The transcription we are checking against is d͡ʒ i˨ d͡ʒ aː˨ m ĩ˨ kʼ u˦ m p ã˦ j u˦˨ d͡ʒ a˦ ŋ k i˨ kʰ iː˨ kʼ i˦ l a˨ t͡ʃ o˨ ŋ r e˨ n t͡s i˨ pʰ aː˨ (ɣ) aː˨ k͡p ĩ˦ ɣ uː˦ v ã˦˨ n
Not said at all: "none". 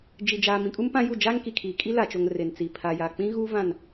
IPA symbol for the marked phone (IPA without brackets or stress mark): j